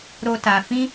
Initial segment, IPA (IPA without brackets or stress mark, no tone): ɾ